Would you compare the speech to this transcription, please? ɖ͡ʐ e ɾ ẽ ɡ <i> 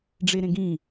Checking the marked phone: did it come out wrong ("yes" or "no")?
yes